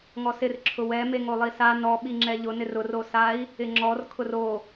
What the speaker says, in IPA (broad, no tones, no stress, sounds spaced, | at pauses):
ŋ ɔ s ɪ r ǁʰ ʊ w ɛ m e ŋ o lˠ i s a n ɔ ɓ i ŋ͡ǁ ɛ ʎ ʊ n ɪ r ʊ r o s a i̯ | ɪ ŋ͡ǁ ɔ r kʰ ʊ r o